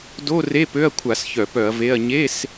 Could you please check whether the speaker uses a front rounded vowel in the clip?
yes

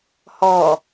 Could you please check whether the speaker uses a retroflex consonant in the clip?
no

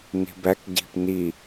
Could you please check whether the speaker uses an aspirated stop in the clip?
no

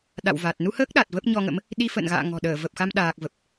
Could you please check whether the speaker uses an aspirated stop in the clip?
no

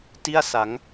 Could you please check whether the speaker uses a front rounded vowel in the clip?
no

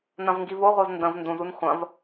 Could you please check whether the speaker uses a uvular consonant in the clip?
yes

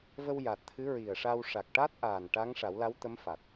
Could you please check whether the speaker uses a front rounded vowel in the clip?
no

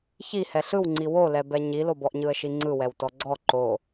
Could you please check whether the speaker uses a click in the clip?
yes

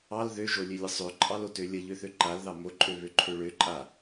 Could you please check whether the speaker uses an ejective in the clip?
yes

